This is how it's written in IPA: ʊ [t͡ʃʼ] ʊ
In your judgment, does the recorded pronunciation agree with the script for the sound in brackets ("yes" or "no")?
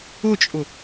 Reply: yes